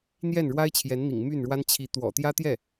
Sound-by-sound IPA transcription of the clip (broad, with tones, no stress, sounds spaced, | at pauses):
n̪ j ɛ˥˩ n ɻ w a˥ ɪ̯ t͡ɕʰ j ɛ˧˥ n n̪ ḭ˨˩ ŋ m y˥˩ n ɻ w a˥ n t͡ɕʰ i˧˥ t̪ w ɔ̰˨˩ t̪ j ä˥ t̪ j ɛ˥˩